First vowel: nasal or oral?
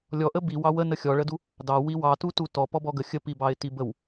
oral